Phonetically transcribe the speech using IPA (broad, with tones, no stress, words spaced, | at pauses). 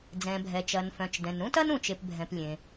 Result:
d͡zɛ̃˩bʱɛ˩t͡ʃɐ˩nfœ̃˩t͡ʃ dɛ̃˩nɾũ˥tɐ˥n ũ˩t͡ʃe˩pbʱɛ̃˩p lʲẽ˩